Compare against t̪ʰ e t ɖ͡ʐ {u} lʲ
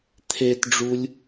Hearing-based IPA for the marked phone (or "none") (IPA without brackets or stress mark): u